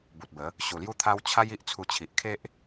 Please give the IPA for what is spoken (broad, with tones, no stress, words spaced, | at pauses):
bu˨t̚bə˨˦ | ɕu˨˩lju˦t̪ʰa˦w t͡ɕʰa˦j i˦ʔt͡sʰu˧ t͡ɕʰi˨ʔkʰe˦ʔ